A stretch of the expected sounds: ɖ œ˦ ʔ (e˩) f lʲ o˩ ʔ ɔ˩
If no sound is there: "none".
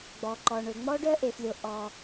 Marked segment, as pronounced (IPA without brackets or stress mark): e˩